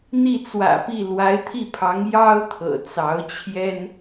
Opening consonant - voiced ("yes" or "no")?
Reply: yes